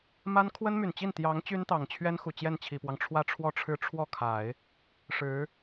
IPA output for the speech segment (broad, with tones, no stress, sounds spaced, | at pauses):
m a˥ n kʰ w ə˥ n m y˨˩ n t͡ɕ i˥˩ n t̪ j ɑ˧˥ ŋ t͡ɕ y˥ n t̪ ɑ˨˩ ŋ t͡ɕʰ ɥ ɛ˥ n x u˨˩ t͡ɕ j ɛ˥˩ n t͡ɕʰ i˨˩ p w ɑ˦ ŋ ʈ͡ʂʰ w ä˥˧ ʈ͡ʂʰ w ɔ˥˩ ʈ͡ʂʰ ɻ̩˥ ʈ͡ʂʰ w ɔ˥˩ kʰ a˨˩˦ ɪ̯ | ʂ ɻ̩˧˥